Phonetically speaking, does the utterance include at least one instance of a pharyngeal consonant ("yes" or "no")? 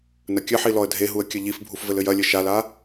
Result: yes